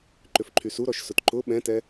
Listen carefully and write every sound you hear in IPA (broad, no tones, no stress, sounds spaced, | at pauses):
ǃ ʏ f ǃʰ y s u ɾ ɔ ʃ s ʊ t ǃ ʊ ɓ ɛ̃ t ɛ